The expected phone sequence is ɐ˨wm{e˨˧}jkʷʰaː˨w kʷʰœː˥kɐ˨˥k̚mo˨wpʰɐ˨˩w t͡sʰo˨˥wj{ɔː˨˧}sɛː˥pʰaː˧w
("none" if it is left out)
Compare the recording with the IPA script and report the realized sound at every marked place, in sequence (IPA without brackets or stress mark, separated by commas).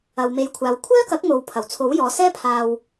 e˨˧, ɔː˨˧